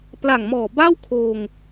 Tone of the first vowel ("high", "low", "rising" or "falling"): low